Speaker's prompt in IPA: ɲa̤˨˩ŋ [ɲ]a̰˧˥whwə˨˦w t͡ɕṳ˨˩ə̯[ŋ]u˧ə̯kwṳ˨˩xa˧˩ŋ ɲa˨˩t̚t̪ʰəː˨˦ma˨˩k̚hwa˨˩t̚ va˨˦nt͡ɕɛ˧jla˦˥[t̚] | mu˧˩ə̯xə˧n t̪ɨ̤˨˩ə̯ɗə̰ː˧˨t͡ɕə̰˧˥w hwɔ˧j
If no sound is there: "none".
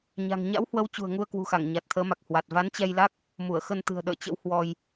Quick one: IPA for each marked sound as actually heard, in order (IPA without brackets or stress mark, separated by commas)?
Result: ɲ, ŋ, k̚